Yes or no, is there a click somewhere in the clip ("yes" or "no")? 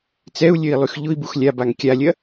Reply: no